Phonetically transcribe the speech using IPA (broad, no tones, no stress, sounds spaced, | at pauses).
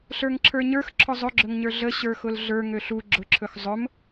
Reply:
ɬ ə˞ ŋ ǁʰ ə˞ ɲ ə˞ x ǁʰ ʊ zˤ ɵ ɡ͡ǁ ɵ ŋ ɲ ə˞ ɮ ə ɕ ə˞ x ʊ l ɮ ə˞ ŋ ø ɬ u ɡ͡ǁ ʊ ǁʰ ɵ x zˤ ɵ m